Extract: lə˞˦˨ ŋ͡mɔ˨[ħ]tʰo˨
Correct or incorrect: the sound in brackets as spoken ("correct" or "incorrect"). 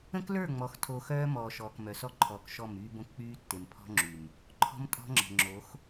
incorrect